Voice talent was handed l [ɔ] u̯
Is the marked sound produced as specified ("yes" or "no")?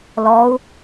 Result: yes